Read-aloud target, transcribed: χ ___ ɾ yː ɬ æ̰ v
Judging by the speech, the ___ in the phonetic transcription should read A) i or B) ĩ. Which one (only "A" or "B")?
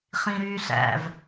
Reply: B